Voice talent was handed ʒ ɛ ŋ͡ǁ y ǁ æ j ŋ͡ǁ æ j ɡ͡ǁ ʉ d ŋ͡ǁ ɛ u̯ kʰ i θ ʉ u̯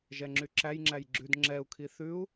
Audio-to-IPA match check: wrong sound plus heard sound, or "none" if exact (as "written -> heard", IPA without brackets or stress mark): none